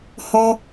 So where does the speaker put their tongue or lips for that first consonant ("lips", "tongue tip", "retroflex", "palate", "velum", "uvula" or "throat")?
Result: throat